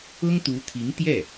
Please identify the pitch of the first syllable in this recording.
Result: high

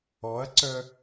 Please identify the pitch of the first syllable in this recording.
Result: rising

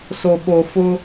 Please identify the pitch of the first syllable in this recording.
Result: low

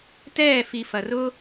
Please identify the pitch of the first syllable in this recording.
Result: falling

